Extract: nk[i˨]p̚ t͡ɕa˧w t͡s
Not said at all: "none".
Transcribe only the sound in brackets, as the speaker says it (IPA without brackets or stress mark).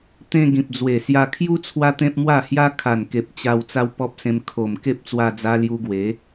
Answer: e˨